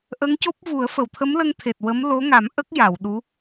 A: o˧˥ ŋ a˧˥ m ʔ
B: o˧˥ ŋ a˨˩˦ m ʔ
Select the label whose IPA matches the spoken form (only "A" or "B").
B